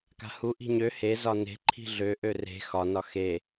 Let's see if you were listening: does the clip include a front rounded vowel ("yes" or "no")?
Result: yes